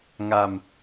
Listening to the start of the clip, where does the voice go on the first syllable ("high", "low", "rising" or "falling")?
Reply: low